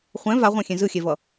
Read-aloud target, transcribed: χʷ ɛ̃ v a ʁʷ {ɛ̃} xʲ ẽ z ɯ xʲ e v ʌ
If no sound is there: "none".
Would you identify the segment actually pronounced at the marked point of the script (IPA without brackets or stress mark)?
ɛ̃